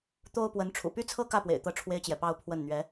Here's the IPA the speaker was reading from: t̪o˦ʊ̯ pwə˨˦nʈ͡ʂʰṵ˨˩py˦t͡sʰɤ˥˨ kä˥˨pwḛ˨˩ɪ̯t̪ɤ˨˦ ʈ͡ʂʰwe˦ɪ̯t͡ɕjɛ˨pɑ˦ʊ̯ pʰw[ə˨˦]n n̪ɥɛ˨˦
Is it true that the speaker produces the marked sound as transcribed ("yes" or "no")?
no